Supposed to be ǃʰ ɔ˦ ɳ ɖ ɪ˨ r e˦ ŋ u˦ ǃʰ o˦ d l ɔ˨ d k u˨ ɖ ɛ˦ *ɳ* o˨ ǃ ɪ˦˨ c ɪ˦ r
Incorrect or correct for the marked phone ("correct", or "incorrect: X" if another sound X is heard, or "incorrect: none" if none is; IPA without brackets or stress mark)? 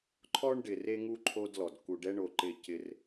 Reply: correct